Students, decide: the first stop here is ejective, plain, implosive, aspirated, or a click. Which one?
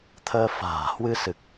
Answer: aspirated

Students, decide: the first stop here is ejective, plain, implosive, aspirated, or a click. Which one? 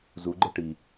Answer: click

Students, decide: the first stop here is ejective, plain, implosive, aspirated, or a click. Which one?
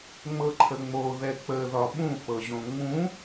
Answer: click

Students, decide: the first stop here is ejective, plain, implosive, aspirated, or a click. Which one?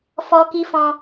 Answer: plain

